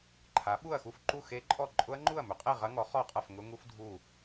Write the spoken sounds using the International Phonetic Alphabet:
ǃʰ a˨˥ ɓ u˥˨ ɐ̯ x u˥˨ f ǃ u˥˨ x e˦˥ ǃʼ ɔ˥˨ ǃʼ ʊ˦˥ ɐ̯ ŋ͡ǃ u˥˨ ɐ̯ m ʏ˨˥ qʼ e˥˨ ʁ ɐ˦˥ ŋ ɔ˨˥ χ ɔ˥˨ qʼ ɐ˥˨ f ŋ ʊ˦˥ ŋ u˦˥ f dʱ u˥˨

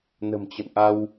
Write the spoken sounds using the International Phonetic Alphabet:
n ə̤˨˩ m t͡ɕ ə̰˧˨ n ʔ a˧ w

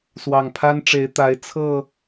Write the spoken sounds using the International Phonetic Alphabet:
s w ɑ˨˩ ŋ pʰ a˦ n ʈ͡ʂ e˨˦ ɪ̯ t̪ a˨˦ ɪ̯ t͡sʰ ɤ˥˨

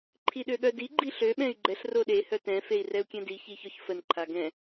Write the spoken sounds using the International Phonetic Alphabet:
ǃʰ i ɗ ø ɠ œ d i ɡ͡ǃ i ɬ ø ɓ ɛ̃ y̯ ɡ͡ǃ ɛ ɬ r o ɗ e h œ t ɛ̃ f e i̯ r ɛ u̯ kʲ ɛ̃ d i ç i ç ɔ ç f ə n ǃʰ a ɡ ɛ̃

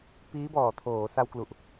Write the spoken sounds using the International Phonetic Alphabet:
p iː˦˥ b ɔː˨˩ tʰ oː˩˦ s a˧ w k l u˨˩ ʔ

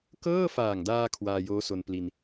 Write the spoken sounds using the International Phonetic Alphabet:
k ɤː˥˩ f aː˨˩ ŋ d aː˧ kʰ w aː˧ j oː˦˥ s o˧ n p l i˧ n

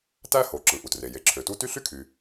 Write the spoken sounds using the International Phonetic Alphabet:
t æ˥ h o˩ ǁ ɯ˩ ʔ u˩ t r e˩ j e˩ ǁʰ ø˩ t u˥ t y˥ ɬ y˥ kʰ y˩

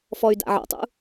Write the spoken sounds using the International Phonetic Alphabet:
f ɔ y̯ d a̰ ʕ ɔ̰ tˤ ṵ

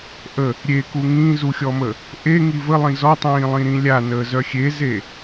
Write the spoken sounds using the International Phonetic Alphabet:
ʔ ə | ɾʲ e k u ŋ ĩ z u xʲ ɔ m əː | ʔ e ŋ i v ə lˠ ĩ z ɔ tˤ ĩː lˠ ĩ ɾ ĩ lʲ a n əː z œ xʲ e z e

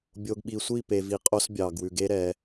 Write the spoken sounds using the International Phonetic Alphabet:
bʲ o˨ ɡ ɓ i˨ sʷ i˦˨ p e˨ v i˨ qʼ o˦ s bʲ ɑ˨ ɡ w ʉ˨ ɡ e˦ ɾ ɛ˨˦

